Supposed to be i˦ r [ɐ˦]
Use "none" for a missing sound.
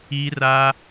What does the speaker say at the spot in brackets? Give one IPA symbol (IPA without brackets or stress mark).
a˦